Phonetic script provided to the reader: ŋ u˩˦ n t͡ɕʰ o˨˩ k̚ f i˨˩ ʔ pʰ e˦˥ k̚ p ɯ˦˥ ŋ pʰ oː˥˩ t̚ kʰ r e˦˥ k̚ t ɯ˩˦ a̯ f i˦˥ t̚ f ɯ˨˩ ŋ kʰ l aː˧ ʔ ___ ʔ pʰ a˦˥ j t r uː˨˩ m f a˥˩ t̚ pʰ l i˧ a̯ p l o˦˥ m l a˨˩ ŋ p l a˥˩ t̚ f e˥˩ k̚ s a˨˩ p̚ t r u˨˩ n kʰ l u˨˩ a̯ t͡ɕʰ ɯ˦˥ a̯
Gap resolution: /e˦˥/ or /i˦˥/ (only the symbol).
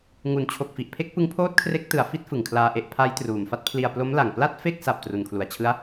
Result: e˦˥